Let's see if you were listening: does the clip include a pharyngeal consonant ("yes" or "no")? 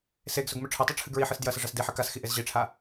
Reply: yes